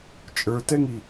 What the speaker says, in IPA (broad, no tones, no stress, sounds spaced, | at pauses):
t͡ʃʼ ə˞ t ɛ ŋ i